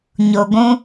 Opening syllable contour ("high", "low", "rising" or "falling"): low